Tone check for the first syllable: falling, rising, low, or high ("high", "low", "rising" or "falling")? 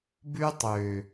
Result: high